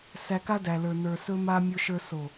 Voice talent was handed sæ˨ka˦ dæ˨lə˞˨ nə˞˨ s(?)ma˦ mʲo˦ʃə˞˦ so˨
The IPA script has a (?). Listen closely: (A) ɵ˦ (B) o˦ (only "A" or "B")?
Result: A